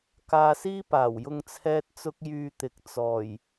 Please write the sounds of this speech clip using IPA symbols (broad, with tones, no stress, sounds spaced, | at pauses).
k aː˧ s iː˥ p aː˨˩ w j ʊ˧ ŋ t͡sʰ ɛː˥ t̚ t͡s ʊ˥ k̚ j yː˧ t̪ ɪ˨ k̚ t͡s ɔː˨˩ j